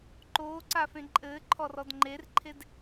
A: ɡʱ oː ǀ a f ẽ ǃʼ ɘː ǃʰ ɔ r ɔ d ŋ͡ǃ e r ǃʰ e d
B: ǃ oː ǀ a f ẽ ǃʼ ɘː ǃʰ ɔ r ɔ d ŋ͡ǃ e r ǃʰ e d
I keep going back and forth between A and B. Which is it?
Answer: B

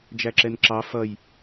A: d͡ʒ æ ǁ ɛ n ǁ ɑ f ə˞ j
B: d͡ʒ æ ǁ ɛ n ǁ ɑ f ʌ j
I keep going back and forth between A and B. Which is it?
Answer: B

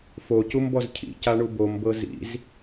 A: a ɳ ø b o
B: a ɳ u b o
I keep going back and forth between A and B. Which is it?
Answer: B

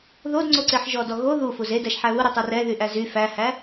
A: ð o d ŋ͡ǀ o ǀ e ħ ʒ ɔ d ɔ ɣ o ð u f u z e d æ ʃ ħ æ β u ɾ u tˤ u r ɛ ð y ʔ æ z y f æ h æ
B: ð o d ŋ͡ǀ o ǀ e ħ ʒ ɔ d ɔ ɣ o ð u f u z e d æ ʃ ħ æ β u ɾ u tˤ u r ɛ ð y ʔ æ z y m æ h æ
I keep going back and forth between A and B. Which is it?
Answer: A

